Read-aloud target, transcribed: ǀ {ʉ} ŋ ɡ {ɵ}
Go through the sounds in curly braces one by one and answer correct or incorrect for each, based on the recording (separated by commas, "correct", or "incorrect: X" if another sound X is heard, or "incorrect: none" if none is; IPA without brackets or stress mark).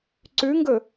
correct, correct